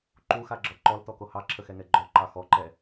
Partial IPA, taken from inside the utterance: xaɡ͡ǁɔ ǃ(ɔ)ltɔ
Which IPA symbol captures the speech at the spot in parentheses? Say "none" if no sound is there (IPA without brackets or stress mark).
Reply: ɔ